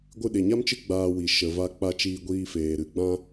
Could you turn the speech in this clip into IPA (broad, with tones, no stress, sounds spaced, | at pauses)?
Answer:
ɡʷ ɨ˧ ɗ e˨ ɲ a˦ m t͡ʃ ɨ˦ ɡ͡b aː˧ w i˨ ʃ ə˨ v a˧ k͡p a˧ t͡ʃ iː˧ ɡʷ iː˧ f eː˨ ɾ ɨ˨ ɡ͡b ã˧